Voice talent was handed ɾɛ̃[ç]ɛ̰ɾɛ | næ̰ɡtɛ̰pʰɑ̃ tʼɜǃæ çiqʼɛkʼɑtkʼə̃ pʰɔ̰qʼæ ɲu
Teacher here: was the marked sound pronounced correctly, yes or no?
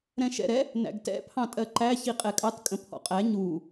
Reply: no